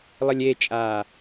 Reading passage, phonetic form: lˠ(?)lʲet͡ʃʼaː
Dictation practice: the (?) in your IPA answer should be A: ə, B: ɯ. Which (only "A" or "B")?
A